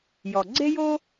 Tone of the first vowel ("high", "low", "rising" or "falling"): low